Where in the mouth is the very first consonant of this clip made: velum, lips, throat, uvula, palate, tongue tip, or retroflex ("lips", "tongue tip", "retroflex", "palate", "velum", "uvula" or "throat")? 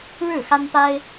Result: retroflex